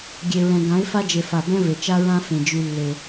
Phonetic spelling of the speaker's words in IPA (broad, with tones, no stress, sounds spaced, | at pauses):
ɡʲ e˨ ɹ ɛ̃˨ ɡ ã˨˦ ɪ̯ f a˦ d͡ʒ e˨ f a˨ b ɛ̃˦ v e˨ t͡ʃ a˦ ɹ ã˦ f ẽ˨ d͡ʒ y˦ lː e˦